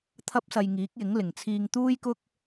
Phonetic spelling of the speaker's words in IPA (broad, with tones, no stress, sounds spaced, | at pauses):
t̪ʰ ɐ˥ p̚ s ɐ˧ j ŋ iː˨˥ k̚ j ɪ˨˥ ŋ l ɪ˨˩ ŋ t͡sʰ iː˧ ŋ t̪ uː˥ j k ʊ˥ k̚